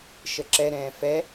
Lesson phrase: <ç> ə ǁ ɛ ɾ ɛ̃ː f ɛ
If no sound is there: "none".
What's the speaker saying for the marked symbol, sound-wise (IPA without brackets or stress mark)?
ʃ